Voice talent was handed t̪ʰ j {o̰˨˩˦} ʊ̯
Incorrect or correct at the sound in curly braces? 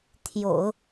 correct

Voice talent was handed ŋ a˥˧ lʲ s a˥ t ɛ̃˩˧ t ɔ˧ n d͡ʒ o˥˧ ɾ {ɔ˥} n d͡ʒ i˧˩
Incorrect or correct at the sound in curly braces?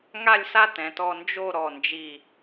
incorrect: ɔ˧˩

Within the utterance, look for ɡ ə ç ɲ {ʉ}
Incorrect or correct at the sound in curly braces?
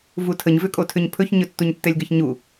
incorrect: u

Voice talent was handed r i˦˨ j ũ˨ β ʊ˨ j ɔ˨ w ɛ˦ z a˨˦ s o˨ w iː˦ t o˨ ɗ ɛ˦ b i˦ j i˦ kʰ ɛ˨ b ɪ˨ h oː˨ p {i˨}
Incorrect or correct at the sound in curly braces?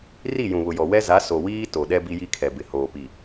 correct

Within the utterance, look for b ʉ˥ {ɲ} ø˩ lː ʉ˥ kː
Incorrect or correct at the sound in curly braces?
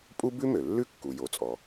incorrect: m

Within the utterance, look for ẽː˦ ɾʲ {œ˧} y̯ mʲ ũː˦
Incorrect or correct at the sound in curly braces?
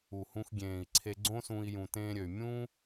incorrect: ø˧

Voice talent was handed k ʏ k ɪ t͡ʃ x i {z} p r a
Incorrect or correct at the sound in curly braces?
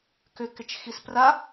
incorrect: s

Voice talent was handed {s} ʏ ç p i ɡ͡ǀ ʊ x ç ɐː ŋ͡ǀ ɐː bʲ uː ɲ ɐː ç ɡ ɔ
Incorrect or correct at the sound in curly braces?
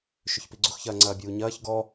incorrect: ʃ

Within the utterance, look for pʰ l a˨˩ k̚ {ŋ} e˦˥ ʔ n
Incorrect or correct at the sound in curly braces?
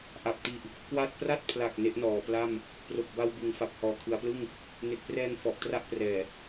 incorrect: n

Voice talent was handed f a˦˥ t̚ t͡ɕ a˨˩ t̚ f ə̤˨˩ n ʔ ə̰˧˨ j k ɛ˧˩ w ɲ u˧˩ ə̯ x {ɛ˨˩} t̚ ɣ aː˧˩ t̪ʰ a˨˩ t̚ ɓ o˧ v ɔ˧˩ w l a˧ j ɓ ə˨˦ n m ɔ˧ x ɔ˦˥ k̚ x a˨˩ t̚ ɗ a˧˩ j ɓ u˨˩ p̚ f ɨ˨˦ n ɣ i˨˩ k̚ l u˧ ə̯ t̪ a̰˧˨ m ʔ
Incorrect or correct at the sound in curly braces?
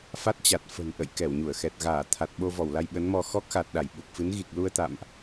correct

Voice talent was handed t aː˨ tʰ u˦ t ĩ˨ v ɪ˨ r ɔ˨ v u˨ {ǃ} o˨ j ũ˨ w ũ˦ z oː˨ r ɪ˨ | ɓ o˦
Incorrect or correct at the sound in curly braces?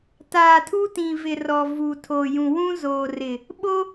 incorrect: tʰ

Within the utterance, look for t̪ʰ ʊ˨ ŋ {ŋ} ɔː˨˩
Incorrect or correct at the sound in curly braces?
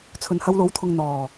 incorrect: n̪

